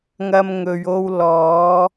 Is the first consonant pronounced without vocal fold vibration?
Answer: no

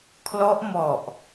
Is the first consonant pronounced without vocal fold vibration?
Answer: yes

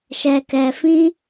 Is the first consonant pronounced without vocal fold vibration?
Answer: yes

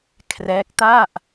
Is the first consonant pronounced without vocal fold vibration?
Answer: yes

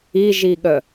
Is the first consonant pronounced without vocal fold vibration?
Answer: no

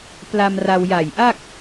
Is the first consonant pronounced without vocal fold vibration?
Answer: yes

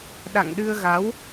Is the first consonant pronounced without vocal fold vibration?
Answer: no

